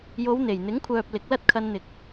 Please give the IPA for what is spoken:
j o˨˧ w n̪ e˨˩ j n̪ ɪ˨˥ ŋ kʷʰ œː˨ p̚ l ɪ˨˥ k̚ l ɐ˥ t̚ kʰ ɐ˧ n n̪ ɪ˨˥ k̚

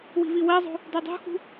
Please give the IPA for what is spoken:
w i̤ v i w ɜ zˤ o̤ | d o dˤ ṳ x ṳ

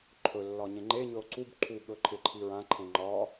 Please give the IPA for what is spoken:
ǃʰ ɵ lː ɒ ɲ ẽ ŋ͡ǃ e ɲ ɵ o̯ ǀ u b ǃʰ u ɠ ɵ ǃʰ ɪ ǃʰ i ɹ ã ǃʰ ẽ ŋ͡ǃ ɒ

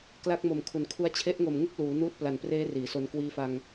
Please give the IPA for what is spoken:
k l a˦˥ k̚ m o˨˩ m kʰ u˩˦ n kʰ u˦˥ a̯ t͡ɕʰ e˦˥ ʔ ŋ o˨˩ m ŋ u˥˩ k̚ l uː˩˦ n uː˦˥ t̚ p l a˨˩ n p r eː˦˥ r iː˩˦ s o˧ n k w iː˧ f a˧ ŋ

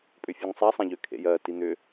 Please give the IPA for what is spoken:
pʼ ʏ fʲ u ŋ sˤ a sˤ ã ʎ ʏ kʰ ḛ j ɜ t i n̪ ʏ

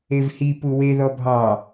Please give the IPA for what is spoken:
e v h i p u w e ð ɔ bʱ ɑ

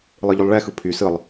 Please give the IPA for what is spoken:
lˠ ɯ ʎ y lˠ ɭ ɛ x ɯ pʰ y s ɯ lˠ

